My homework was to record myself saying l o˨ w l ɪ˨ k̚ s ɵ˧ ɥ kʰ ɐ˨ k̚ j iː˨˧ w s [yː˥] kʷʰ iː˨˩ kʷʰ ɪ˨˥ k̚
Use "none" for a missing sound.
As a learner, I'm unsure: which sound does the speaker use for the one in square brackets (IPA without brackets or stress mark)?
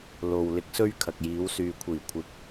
yː˨